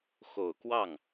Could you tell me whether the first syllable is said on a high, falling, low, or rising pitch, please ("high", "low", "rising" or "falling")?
low